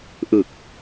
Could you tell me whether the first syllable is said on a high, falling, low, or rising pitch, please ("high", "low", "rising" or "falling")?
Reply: low